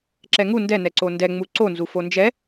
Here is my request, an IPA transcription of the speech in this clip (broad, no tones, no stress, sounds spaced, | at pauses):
ǁ ɛ ŋ u n d ɛ n ɛ ǀ o n d ɛ ŋ͡m u ǀ o n z u f o n d͡ʒ ɛ